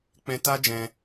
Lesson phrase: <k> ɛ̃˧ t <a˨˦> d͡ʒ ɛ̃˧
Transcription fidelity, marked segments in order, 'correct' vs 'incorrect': incorrect: k͡p, incorrect: a˦

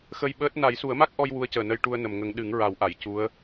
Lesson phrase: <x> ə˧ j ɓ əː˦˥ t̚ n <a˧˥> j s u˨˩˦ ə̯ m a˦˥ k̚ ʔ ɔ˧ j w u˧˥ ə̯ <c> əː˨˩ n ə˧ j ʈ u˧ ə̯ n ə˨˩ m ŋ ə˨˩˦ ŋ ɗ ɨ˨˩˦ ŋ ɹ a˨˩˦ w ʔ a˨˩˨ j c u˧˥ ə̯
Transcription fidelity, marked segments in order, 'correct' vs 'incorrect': correct, incorrect: a˨˩˦, correct

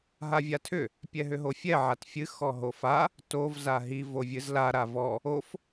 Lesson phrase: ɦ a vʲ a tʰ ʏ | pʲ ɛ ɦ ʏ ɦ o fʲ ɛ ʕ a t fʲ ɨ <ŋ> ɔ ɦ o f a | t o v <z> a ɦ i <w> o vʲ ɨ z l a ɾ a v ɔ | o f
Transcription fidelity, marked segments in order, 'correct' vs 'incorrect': incorrect: x, correct, incorrect: v

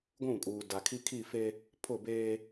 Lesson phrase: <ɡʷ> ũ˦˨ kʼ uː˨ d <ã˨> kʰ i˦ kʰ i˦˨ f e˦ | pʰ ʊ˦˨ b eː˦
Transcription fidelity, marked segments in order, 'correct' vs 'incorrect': correct, incorrect: a˨

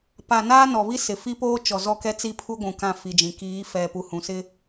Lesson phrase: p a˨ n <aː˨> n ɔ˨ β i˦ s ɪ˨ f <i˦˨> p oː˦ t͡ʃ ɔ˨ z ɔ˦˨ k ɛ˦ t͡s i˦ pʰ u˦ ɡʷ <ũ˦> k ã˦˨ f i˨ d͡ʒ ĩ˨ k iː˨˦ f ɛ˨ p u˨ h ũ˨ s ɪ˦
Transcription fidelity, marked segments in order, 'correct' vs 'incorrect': incorrect: aː˦, incorrect: i˦, incorrect: ũ˨

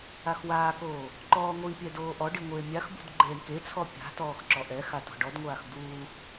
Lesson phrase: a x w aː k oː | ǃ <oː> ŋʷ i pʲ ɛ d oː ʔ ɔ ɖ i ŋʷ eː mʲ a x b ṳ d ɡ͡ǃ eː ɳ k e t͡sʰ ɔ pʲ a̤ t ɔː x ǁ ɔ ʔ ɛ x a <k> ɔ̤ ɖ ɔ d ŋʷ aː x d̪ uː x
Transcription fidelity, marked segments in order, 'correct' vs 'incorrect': incorrect: ɔː, incorrect: t

